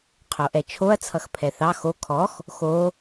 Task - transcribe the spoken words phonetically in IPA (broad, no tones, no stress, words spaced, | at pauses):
qʰoʔɛt͡ʃʰoɐ̯ t͡sʰʌxpʰɛθɑ xo kʰɔx | xo